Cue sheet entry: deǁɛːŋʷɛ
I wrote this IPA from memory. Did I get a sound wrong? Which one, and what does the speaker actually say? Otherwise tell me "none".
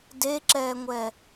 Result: none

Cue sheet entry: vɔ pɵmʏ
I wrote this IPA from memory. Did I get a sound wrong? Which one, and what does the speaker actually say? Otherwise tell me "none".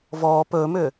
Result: none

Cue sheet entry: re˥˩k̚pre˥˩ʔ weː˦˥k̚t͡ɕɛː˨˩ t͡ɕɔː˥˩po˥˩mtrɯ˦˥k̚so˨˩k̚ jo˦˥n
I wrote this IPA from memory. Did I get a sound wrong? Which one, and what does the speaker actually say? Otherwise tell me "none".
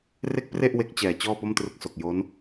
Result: eː˦˥ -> e˦˥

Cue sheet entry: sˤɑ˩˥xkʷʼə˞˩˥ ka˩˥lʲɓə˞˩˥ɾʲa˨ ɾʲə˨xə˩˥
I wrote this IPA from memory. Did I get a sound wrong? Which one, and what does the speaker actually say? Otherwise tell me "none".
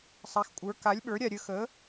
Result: ɑ˩˥ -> a˩˥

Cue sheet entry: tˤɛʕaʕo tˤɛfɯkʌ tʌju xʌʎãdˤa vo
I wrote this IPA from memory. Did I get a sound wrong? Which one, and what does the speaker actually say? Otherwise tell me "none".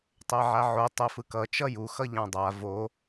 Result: t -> t͡ʃ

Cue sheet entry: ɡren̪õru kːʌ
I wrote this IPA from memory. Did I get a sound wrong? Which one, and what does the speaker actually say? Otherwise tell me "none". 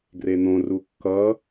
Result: none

